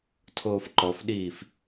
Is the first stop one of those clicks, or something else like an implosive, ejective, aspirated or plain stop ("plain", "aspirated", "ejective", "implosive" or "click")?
aspirated